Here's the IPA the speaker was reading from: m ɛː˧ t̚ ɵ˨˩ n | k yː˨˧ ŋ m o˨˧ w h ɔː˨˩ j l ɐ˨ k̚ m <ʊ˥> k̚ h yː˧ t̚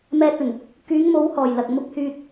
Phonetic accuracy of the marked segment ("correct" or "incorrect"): incorrect